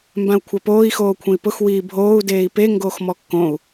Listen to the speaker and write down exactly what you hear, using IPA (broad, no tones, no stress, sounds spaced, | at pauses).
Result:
m b ã u̯ kʷʰ a p oː i̯ x oː kʷʰ ẽ i̯ p ʊ x w iː bʱ oː u̯ d eː i̯ p e ŋ ɡ oː x m ɔ kː õ u̯